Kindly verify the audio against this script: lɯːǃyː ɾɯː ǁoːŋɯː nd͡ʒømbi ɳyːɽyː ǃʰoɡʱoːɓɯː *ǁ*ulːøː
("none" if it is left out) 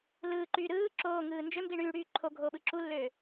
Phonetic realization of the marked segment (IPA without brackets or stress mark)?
ǁ